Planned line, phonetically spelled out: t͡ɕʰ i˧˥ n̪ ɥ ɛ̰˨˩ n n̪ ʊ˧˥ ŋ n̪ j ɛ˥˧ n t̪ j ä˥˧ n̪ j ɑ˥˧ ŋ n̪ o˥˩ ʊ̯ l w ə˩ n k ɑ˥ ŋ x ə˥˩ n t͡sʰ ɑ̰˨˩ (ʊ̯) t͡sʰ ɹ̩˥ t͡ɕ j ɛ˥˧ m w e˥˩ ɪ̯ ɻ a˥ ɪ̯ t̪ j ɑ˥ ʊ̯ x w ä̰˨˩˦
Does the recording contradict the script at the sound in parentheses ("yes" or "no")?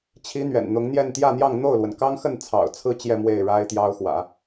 no